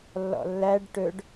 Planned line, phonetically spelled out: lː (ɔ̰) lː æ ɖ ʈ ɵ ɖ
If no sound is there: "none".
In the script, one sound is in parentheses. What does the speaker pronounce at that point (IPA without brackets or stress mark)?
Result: ɔ̰